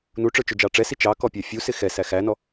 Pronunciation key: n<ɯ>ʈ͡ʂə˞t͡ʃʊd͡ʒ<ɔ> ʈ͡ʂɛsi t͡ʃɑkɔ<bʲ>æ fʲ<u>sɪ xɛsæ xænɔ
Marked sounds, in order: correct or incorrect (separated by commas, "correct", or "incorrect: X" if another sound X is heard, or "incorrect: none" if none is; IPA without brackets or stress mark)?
incorrect: u, incorrect: ɑ, incorrect: pʲ, correct